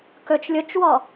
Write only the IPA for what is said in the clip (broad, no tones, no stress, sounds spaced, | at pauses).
k ɵ t͡ʃ lʲ ʊ t͡ʃ w ɔ